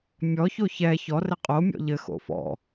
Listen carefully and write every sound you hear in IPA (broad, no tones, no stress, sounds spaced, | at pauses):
mʲ ɔ ç o ç ɛ ç ɔ r ɘ qʼ o mʲ ɔ̰ ʎ ɘ x o̰ f ɔ̰